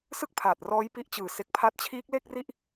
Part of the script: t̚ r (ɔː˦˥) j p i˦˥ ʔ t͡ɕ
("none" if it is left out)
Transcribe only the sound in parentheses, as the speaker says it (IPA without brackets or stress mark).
ɔː˦˥